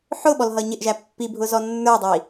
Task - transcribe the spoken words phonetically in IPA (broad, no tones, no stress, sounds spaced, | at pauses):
ħ ʊ ɓ ɔ l ɦ ʌ ɲ ɪ ʔ ʒ æ pː i bʱ ʊ z ɔ nː ə˞ dˤ i